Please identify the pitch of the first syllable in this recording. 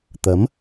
rising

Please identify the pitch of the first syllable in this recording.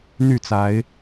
falling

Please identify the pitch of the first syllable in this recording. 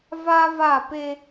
high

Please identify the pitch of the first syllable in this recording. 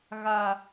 high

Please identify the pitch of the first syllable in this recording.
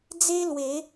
high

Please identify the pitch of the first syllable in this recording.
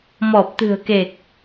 low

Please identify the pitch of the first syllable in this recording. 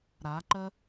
rising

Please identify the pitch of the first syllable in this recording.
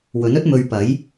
rising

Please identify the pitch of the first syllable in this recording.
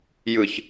low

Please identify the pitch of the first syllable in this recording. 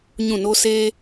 falling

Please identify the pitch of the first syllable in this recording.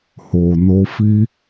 low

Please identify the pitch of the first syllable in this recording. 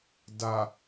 low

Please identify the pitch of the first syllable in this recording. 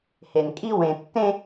low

